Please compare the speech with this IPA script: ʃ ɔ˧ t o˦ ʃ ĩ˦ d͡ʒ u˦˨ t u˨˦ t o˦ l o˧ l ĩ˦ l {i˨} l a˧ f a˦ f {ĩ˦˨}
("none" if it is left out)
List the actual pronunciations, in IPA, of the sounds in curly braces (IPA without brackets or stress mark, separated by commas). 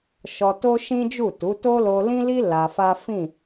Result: i˦, ĩ˦˨